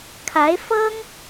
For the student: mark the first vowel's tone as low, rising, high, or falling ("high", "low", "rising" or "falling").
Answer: rising